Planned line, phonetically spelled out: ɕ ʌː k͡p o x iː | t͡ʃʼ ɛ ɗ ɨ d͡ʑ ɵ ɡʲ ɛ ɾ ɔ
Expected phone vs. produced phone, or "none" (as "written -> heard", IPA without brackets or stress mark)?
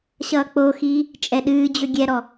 ɨ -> ɨː